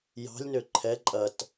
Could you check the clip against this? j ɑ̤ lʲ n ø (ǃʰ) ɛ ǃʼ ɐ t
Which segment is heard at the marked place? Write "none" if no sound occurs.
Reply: ǃʰ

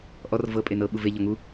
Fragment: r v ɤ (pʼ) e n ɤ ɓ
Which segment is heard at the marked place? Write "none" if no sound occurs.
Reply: pʼ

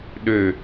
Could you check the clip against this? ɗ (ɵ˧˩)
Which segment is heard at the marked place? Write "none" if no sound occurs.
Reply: ø˧˩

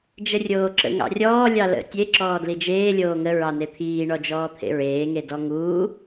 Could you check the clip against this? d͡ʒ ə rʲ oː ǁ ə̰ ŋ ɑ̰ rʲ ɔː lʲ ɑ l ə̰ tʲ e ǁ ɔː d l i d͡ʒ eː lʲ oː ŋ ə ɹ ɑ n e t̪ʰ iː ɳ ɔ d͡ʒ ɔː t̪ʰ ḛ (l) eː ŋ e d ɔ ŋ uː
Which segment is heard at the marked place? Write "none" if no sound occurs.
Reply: ɹ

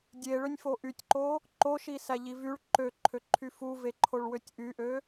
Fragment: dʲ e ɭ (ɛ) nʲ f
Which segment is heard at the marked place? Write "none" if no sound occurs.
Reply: ø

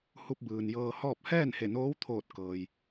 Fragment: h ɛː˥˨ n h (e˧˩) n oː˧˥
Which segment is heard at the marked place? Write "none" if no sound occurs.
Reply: e˧˩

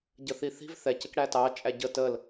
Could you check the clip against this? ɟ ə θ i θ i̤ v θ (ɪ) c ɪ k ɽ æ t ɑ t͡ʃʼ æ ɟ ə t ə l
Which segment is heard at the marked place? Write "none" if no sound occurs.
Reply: ɛ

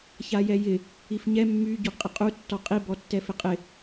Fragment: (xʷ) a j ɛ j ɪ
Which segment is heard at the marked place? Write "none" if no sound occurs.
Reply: ç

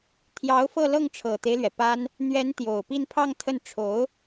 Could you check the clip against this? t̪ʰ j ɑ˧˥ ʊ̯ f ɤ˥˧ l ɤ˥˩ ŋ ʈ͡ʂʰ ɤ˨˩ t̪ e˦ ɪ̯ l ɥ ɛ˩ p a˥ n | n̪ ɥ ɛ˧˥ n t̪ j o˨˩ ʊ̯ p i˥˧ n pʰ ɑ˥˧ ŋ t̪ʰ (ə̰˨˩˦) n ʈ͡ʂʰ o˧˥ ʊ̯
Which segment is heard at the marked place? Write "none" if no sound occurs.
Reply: ə˥˩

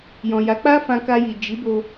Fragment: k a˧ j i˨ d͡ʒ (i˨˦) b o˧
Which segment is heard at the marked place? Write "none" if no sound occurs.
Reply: i˨˦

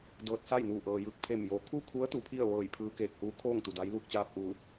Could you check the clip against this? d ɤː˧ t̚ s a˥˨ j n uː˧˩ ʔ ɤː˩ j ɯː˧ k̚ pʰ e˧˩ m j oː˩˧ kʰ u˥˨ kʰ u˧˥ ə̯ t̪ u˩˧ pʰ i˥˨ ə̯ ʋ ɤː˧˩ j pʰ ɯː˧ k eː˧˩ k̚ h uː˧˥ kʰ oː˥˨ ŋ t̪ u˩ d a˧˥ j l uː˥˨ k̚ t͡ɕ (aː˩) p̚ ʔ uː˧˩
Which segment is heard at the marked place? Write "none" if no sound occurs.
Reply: aː˥˨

